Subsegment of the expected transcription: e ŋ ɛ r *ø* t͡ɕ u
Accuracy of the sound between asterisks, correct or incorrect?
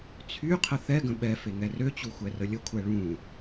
correct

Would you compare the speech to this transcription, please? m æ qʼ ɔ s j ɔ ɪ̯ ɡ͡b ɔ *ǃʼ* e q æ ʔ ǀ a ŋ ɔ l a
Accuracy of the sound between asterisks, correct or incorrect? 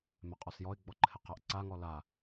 incorrect: ǃʰ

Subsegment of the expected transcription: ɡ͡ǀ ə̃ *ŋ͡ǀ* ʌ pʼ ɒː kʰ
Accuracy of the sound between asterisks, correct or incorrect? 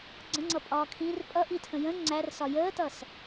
correct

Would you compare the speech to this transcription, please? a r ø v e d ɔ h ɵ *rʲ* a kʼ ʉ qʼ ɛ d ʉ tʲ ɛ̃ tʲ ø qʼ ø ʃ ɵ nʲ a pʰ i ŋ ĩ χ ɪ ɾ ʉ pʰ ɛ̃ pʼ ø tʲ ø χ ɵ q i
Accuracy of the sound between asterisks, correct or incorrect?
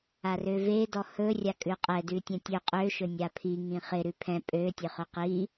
correct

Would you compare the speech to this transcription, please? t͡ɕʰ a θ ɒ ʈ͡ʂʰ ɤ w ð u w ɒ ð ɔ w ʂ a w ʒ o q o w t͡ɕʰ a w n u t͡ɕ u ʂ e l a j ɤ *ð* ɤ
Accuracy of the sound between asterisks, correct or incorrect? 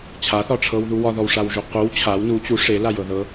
correct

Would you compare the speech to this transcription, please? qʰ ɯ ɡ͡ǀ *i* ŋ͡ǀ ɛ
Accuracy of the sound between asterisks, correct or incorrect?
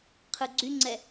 incorrect: y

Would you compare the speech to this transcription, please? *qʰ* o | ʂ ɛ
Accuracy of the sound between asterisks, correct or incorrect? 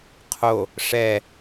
correct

